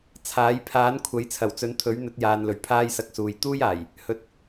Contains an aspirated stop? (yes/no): yes